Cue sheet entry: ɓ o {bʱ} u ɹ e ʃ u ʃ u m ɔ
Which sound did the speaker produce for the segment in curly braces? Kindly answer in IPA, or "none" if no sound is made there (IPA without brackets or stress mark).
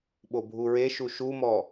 bʱ